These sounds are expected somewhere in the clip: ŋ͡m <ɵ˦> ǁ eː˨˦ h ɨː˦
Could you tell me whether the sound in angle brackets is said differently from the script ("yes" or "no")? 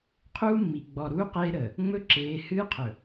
no